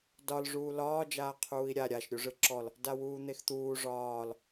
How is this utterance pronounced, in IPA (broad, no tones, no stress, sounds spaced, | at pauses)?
d ɒ l ʐ uː l ɒː d͡ʒ aː qʰ uː i̯ ɾʲ a ɾʲ a ʃ ɾʲ u ʐ ɯ ǁ ɔ l | d a w uː n̪ e x t̪ uː ʐ ɒː l